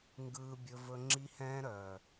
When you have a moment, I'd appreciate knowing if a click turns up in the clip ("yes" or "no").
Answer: yes